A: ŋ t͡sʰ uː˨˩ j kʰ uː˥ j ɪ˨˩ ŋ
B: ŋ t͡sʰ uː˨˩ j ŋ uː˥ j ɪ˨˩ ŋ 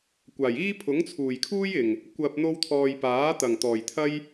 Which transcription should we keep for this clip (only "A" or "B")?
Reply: A